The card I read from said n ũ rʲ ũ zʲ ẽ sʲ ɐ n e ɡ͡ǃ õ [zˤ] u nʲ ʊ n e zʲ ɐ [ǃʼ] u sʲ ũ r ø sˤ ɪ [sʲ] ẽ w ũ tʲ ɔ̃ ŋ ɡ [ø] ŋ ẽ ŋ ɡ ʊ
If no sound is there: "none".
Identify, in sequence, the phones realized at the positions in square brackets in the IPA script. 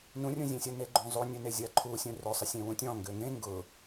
zˤ, ǃʰ, sʲ, ø

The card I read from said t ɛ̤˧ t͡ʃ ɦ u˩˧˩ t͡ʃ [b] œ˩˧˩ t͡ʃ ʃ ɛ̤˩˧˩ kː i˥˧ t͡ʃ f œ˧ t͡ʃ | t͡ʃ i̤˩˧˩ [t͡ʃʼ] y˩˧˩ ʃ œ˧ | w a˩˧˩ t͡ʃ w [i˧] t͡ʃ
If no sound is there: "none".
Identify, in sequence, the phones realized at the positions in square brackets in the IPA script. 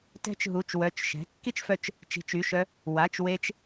w, t͡ʃ, e˧

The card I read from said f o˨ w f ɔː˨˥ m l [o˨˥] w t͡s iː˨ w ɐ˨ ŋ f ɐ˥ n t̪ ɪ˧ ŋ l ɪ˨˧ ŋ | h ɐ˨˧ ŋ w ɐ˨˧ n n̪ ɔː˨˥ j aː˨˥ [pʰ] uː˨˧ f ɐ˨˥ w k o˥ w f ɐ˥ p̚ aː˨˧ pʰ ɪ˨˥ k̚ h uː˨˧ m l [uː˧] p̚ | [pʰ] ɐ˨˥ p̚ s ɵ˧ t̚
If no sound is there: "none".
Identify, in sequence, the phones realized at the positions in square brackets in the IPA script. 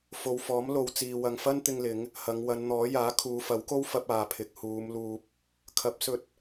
o˨, kʰ, uː˧, kʰ

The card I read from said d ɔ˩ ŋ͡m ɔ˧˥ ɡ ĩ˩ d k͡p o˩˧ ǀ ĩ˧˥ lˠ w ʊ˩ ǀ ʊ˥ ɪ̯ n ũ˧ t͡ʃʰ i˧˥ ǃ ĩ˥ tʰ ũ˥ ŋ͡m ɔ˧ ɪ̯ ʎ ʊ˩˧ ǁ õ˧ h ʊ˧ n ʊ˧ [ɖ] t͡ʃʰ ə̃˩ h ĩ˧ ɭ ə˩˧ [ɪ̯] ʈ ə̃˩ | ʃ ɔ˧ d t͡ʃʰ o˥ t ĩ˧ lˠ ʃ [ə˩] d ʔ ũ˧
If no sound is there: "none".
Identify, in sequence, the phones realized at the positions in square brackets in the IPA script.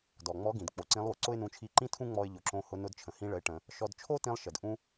d, ɪ̯, ə˩

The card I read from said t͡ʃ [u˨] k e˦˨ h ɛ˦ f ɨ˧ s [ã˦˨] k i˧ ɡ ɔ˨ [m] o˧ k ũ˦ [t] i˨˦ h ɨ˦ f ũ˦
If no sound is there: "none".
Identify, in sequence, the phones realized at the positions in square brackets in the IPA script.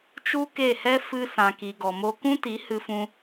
u˦, ã˧, m, t

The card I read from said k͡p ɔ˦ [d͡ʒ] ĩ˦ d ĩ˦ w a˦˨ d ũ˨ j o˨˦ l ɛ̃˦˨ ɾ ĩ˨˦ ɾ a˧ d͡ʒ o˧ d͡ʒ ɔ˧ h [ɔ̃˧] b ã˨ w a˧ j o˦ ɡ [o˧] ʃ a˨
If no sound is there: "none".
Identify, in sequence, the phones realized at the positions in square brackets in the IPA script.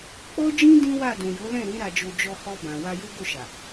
d͡ʒ, ɔ˧, o˦˨

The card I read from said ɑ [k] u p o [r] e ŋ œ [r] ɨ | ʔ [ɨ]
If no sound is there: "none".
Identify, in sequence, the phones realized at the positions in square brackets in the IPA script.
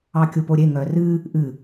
kʲ, ɾʲ, r, ɨ

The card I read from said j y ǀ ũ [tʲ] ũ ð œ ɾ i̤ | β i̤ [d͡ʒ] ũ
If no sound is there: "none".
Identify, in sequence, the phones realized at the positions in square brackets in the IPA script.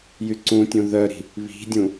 tʲ, dʲ

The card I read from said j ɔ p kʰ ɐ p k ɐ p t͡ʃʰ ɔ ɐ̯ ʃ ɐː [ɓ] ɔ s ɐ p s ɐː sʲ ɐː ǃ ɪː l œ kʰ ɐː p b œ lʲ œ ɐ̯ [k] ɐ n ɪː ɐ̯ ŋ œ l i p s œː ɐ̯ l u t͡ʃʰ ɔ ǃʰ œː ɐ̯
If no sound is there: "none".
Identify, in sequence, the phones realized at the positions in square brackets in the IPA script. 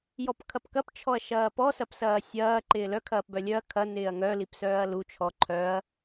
p, kʰ

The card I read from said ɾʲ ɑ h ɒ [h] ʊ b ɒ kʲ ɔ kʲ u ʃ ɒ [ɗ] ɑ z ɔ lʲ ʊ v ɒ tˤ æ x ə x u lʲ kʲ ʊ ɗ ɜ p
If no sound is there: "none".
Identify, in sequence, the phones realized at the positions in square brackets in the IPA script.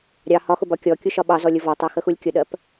x, ɓ

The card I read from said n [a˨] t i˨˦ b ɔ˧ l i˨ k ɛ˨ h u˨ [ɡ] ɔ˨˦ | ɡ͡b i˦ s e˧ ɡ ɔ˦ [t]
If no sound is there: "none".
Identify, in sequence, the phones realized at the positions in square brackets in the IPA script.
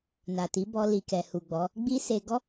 a˨, ɡ͡b, none

